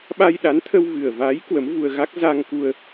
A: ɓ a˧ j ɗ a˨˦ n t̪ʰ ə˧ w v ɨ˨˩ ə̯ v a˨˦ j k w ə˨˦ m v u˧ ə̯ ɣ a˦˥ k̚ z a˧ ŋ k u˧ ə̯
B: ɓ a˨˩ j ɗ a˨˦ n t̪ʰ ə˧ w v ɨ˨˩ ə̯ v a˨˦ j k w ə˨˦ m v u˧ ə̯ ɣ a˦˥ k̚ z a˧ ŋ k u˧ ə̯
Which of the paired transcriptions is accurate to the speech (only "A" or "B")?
A